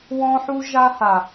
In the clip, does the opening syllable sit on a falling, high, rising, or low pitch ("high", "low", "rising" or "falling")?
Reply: high